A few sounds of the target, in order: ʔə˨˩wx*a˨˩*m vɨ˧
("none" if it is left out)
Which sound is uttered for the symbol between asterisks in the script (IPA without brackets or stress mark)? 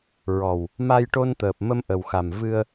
a˨˩